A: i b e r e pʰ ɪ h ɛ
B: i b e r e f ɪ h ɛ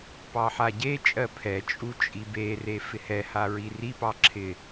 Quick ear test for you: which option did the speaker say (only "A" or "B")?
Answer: B